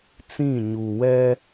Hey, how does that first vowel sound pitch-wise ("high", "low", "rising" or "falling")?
falling